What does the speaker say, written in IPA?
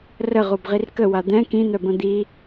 r ə ʁ u b ʁ i r k ə w a d̪ ɛ̃ k ĩ n̪ œ b ə̃ d̪ i

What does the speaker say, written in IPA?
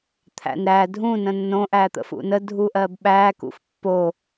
t̪ʰ æ̰ n ɾ æ dʱ ũ n ə̃ nː õ ʔ æ t̪ ə̰ f ṵ n ə dʱ u ʔ ɜ b ɓ æ k ṵ f pː o

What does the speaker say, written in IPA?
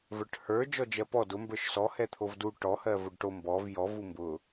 v ə˞ ʈ h ə˞ d͡ʒ ɔ d͡ʒ ɜ p ɔ d ʊ m b ə˞ ʃ s ɔ h ɛ t̪ʰ o v d u ʈ ɔ h ɜ v o ɖ ʈ o m b ɔ v j ɔ v u m b ʊ

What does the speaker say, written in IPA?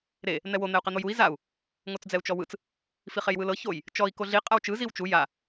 ɾ e | n̪ ɛ w o n̪ ɛ u̯ q ɛ n̪ o j u i̯ z a u̯ | ŋ o t͡s d͡z ɛ u̯ t͡ʃ ɔ w ɯ t͡s | f i χ e j w ɯ l ɤ ç o j | t͡ʃ ɔ i̯ k o ɮ i qʼ a w t͡ʃ ɯ z i w t͡ʃ u j a

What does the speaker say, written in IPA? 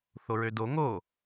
θ o ɹ ø d o ŋ o

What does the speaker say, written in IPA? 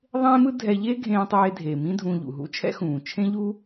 ðˤ ẽː˥ m ɯ˥ dʱ ɛ˧ ʎ eː˥ ɡʱ ẽː˧ tˤ eː˧ dʱ eː˩ m ĩ˥ dʱ ũː˧ ʎ ṵ˩ ɦ ṵ˥ t͡ʃʰ ɛ̰˥ x ũː˩ t͡ʃʰ ẽ˥ ʎ u˥

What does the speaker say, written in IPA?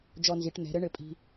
d͡ʒ ɔ˧ n z i˩˧ ʈ n̪ ɛ̤˩˧ ɾ ɘ˧˥ ɳ ɘ˧ pʼ i̤˧

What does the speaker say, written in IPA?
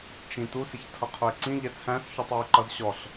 t͡ʃ ĩ t u s ɪ ç tʰ ʌ qʰ ʊ ɪ̯ ǀ ĩ ʎ ɛ t͡sʰ æ̃ s ç u tˤ w i ǃ ʌ z ɕ ɔ ɬ

